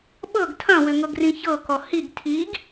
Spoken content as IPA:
ɓ ɤ ɡ tʰ ɐ̃ w ʏ ŋ ɤ ɡ r ĩ ç ɤ k ɔ h i ɡ tʰ i ɡ

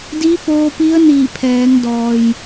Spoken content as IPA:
d iː˧˥ f oː˧ p i˧˥ ə̯ n iː˧˩ pʰ ɛː˩˧ ŋ d ɔː˩ j

